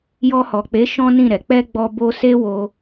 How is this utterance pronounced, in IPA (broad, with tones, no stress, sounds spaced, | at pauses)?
j ɔ˧ h ɔ˨ k͡p e˨˦ ʃ ɔ̃˦ n ĩ˦˨ ɾ ɛ˨ k͡p ɛ˧ ɡ͡b ɔ˧ b o˧ s e˦ w o˧